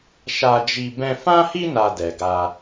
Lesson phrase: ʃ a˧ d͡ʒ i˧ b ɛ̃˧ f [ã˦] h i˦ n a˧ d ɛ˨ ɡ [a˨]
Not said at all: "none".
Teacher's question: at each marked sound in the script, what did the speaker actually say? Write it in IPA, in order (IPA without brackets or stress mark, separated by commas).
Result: ã˦, a˧